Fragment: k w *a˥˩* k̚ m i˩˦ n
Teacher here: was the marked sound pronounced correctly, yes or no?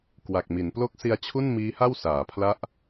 no